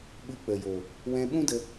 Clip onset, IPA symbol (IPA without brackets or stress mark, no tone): ɓ